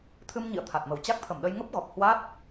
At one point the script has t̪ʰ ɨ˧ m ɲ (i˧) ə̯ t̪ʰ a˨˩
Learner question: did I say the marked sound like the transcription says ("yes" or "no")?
no